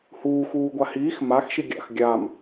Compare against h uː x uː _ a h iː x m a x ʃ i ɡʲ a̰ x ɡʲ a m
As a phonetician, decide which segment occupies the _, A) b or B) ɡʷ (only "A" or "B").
B